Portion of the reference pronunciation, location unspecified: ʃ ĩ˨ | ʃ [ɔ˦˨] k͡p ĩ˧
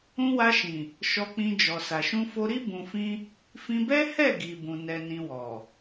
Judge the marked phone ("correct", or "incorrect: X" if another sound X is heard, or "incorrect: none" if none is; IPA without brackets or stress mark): incorrect: ɔ˧